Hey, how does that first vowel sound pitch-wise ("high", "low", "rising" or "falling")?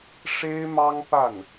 high